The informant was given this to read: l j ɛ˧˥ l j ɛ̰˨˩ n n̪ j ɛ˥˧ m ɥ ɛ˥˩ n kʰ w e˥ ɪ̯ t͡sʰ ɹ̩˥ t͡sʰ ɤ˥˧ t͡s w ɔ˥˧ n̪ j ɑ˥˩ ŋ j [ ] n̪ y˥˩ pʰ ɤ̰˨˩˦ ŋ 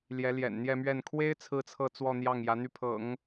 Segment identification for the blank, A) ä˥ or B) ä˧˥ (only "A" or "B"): B